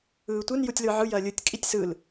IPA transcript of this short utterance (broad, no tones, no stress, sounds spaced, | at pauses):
ɯː tʷ ɨ n j u tʲ l ɯ ʕ ɯ j ɐ lʲ ɯ tʲ kʼ i tʲ s ɯ l